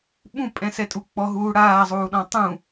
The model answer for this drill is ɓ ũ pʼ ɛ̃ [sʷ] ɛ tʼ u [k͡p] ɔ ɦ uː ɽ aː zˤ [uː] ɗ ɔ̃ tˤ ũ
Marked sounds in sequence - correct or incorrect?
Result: incorrect: s, correct, correct

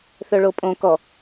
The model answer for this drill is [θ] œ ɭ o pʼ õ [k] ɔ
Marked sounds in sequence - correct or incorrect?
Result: correct, correct

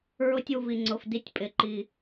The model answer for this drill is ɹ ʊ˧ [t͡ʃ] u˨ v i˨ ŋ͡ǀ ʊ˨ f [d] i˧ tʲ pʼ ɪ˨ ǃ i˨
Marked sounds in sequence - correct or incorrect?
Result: incorrect: tʲ, correct

